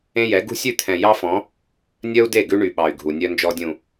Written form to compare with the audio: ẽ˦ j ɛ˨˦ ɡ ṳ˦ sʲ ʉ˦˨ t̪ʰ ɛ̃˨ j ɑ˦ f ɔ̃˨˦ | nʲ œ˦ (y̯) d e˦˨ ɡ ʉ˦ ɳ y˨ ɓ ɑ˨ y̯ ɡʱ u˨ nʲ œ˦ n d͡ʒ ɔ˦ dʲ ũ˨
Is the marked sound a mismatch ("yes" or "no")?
yes